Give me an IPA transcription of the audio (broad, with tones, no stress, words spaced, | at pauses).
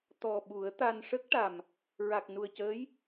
t̪ɔ˨˩ ɓu˨˩˦ə̯t̪a˧n ʂə˦˥k̚ʈa˨˩m | ɹa˨˩k̚nu˨˩ə̯cəː˧˥j